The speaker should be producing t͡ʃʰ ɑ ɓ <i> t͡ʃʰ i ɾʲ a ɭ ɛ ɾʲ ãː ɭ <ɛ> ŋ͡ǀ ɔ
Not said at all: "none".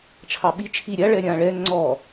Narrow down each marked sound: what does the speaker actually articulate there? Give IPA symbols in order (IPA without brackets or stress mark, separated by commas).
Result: i, ɛ